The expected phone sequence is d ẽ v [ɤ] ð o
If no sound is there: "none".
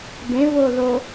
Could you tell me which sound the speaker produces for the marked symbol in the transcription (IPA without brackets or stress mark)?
o